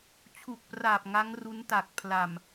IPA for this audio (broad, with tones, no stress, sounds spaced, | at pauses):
t͡ɕʰ u˨˩ k̚ p r aː˨˩ p̚ ŋ a˦˥ ŋ r u˦˥ n t a˨˩ k̚ pʰ l a˨˩ m